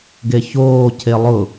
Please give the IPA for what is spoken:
ɡeçoː cʰelˠʊ

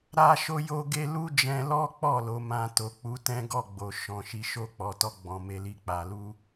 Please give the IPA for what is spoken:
ɾa˧ʃo˧jo˧ɡe˧ lu˦d͡ʒɛ̃˧lɔ˦k͡pɔ˦˨ lo˨˦mã˧ to˨k͡pu˨˦tɛ̃˦ɡɔ˦˨ ɡ͡bo˨ ʃɔ̃˨˦ʃi˦ ʃo˦˨k͡pɔ˨˦tɔ˦ ɡ͡bɔ̃˧me˦li˦˨k͡pa˧ lu˦

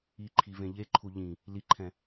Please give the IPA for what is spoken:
iǃʰivẽ ʎeǃʰu ʎĩ | liǃʰɛ̃

